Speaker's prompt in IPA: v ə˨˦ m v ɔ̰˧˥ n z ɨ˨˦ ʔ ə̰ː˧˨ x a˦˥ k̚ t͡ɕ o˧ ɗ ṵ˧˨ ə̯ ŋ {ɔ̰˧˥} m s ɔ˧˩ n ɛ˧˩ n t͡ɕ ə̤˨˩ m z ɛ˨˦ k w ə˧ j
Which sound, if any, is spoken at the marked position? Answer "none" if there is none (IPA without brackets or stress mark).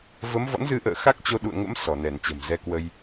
ə̰˧˥